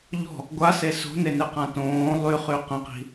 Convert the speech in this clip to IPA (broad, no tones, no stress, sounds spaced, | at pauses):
ʎ ɔ̤ | ɡʷ a s e s o̤ n e n e q ã t õː lˠ y χ y q ə̃ q i̤